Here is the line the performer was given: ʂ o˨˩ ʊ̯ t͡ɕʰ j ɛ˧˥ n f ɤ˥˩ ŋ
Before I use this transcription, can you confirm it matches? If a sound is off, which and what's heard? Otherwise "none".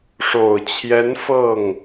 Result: none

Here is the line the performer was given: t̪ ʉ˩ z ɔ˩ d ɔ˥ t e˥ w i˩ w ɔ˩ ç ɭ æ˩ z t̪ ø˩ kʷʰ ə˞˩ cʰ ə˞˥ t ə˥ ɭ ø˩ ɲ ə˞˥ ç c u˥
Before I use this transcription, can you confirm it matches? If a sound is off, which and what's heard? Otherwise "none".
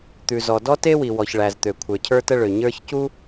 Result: none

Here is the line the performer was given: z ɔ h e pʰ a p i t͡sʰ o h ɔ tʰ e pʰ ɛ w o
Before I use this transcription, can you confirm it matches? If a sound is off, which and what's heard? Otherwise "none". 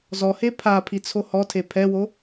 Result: p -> pʰ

